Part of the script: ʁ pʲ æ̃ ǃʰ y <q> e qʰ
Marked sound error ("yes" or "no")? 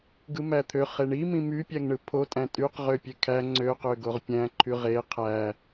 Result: yes